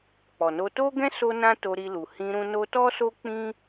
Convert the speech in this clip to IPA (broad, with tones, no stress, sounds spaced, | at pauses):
k͡p ɔ˨ n o˧ t o˦ ɡ ɛ̃˦ s o˦ n ã˦ t o˧ ɾ i˧ l u˨ h ĩ˧ ɾ ũ˧ n o˧ t ɔ˦ s o˦ k͡p ĩ˦